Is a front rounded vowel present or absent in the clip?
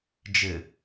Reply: absent